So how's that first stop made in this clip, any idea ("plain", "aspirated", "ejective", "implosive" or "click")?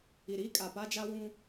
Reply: ejective